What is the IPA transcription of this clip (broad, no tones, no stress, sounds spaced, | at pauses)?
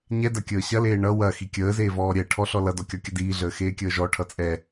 ɲ ɛ d ɐ kʲ əː ɕ ɐ l eː ɳ ʌ w ɐ x i kʲ əː z eː v ɔː ɾʲ ɛ ʈʰ ɔ ɬ ɔ l ʌ d ɔ kʲ ɒ kʲ ə d iː ɮ əː x eː kʲ əː ʒ ɔ ʈʰ ʌ t͡sʼ ɛ